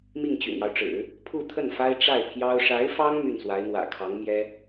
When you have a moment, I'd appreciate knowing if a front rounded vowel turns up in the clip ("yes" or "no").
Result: yes